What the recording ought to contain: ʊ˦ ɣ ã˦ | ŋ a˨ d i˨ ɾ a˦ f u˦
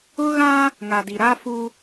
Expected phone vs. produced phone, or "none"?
none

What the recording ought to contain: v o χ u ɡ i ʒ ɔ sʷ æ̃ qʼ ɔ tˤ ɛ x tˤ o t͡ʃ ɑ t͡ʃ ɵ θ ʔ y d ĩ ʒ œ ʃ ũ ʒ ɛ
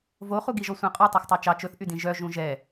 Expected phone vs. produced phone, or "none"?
ʃ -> ʒ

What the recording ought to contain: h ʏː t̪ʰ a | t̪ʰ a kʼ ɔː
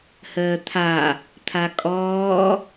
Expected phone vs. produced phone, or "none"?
ʏː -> əː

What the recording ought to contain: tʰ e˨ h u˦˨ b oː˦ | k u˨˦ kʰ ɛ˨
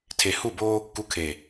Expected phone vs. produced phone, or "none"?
ɛ˨ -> e˨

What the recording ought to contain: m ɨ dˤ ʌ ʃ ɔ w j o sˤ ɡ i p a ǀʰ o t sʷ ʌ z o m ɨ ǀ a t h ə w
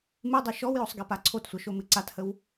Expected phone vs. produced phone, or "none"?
z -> ʃ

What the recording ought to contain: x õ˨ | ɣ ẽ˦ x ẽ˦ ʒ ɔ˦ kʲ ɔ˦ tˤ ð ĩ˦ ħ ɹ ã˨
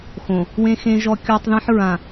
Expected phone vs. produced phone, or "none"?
ɣ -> w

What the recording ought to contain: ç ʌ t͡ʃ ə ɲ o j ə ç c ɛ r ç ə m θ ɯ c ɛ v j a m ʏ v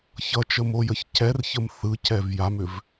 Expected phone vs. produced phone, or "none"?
ɲ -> m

